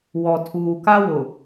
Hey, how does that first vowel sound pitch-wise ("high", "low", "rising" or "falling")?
low